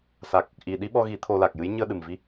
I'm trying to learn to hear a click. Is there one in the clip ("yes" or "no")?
no